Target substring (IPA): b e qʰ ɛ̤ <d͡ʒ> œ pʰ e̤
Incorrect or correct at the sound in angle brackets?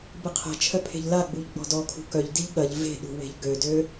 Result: incorrect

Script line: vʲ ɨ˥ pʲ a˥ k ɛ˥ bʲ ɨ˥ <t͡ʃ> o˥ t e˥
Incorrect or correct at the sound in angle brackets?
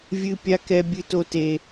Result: incorrect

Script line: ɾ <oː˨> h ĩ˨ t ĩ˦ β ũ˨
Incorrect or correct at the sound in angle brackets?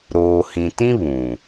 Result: correct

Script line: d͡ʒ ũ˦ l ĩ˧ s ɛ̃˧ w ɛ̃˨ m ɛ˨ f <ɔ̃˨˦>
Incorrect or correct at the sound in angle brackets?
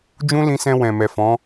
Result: correct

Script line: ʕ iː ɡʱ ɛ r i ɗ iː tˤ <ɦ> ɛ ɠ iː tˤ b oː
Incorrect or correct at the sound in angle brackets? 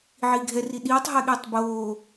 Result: correct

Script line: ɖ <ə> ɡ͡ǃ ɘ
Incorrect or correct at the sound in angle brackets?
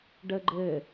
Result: correct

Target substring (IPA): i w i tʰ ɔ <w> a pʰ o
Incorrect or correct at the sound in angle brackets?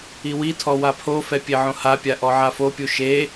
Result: correct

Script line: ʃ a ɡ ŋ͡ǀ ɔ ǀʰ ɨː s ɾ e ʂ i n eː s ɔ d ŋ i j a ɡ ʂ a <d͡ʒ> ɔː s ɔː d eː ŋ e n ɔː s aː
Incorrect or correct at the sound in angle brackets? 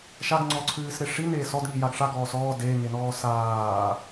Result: incorrect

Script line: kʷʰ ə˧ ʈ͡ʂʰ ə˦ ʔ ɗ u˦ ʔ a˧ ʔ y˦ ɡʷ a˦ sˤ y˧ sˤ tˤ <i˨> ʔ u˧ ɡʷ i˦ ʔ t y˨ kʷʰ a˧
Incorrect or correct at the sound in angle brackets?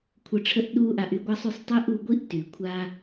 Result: incorrect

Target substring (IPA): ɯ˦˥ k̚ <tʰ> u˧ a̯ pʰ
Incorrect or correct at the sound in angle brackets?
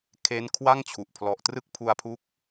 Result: incorrect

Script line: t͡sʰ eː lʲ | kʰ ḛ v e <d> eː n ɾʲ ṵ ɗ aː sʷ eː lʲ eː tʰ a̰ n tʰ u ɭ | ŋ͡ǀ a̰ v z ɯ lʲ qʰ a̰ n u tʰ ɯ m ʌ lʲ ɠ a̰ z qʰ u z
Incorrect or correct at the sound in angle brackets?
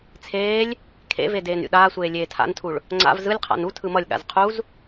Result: correct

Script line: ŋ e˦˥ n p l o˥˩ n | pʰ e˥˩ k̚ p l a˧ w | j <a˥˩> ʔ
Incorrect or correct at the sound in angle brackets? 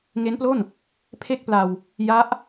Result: incorrect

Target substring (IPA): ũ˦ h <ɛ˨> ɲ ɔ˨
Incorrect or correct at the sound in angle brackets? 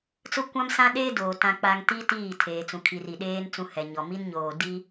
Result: correct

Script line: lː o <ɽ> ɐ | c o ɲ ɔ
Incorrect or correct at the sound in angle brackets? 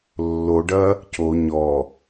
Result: incorrect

